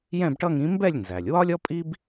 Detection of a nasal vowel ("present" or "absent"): present